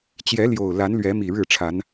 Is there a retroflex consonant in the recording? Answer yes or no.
yes